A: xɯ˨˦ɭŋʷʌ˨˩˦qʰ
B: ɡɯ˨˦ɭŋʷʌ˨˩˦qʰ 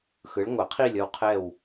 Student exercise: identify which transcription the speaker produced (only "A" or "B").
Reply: A